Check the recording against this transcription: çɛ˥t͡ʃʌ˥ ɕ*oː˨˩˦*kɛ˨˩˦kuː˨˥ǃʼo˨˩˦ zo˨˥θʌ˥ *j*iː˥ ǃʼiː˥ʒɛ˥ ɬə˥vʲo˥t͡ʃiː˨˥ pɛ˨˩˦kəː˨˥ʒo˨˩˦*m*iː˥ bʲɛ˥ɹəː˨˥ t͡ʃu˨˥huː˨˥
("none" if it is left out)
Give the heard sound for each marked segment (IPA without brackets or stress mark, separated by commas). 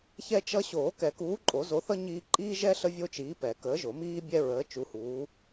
oː˨˩˦, ɲ, m